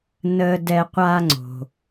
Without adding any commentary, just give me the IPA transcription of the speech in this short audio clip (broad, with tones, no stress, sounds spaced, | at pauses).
n əː˦ d ɛ˦ qʷ a˦ ŋ͡ǀ o̤˨